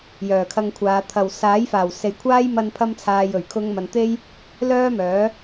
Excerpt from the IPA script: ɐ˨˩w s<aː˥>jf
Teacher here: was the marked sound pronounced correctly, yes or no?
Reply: no